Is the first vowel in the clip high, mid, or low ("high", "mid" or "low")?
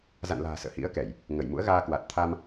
low